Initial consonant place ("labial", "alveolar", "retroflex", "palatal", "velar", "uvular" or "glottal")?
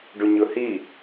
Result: retroflex